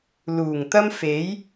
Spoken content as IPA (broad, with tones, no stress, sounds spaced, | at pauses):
l uː˨˩ ŋ t̪ ɐ˥ m f e˨˥ j